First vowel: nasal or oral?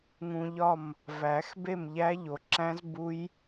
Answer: nasal